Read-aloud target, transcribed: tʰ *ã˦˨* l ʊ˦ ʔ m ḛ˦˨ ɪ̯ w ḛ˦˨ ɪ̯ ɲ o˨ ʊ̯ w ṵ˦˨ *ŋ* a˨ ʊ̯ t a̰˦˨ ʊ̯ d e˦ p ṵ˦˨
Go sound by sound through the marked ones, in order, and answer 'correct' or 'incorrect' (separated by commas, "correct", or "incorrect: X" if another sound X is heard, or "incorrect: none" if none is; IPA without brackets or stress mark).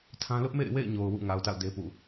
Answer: incorrect: ã˦, correct